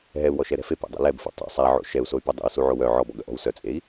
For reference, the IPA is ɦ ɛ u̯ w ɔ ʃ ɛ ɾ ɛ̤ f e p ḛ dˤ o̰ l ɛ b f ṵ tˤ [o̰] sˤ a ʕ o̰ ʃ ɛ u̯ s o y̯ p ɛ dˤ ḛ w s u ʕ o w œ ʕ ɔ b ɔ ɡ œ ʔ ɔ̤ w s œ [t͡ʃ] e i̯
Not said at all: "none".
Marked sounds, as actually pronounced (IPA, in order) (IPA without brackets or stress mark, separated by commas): o̰, t͡sʼ